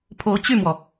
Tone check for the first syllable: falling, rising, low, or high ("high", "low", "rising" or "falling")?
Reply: rising